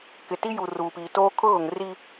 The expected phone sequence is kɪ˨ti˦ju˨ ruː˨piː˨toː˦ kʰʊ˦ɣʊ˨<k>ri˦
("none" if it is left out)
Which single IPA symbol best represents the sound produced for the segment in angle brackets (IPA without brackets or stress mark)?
ŋ